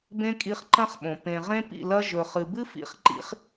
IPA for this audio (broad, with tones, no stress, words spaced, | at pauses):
bẽ˧ kʼi˧χ ǃɐ̃˦χɓõ˨ pẽ˨ ʁẽ˧ pḭ˦˨lɐ˧ ʒɵ˨χɨ˨bɨ˦ fḭ˦χǃḭ˦χ